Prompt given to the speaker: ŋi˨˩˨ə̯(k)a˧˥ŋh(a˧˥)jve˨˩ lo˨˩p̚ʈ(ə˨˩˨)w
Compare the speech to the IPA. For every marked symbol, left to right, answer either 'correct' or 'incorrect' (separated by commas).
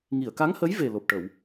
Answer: correct, incorrect, correct